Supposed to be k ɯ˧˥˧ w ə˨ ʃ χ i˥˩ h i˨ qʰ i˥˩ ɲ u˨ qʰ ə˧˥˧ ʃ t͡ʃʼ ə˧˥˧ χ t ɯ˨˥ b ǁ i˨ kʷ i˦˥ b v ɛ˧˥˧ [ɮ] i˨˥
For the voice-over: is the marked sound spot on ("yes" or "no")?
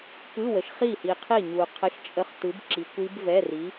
no